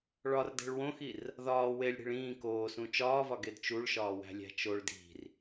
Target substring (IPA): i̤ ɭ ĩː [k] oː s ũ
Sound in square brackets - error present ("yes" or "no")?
no